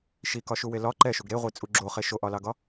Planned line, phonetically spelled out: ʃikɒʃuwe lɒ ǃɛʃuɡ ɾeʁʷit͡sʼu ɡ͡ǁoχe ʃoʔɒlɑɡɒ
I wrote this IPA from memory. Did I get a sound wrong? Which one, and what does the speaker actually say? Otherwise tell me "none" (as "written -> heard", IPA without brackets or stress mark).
none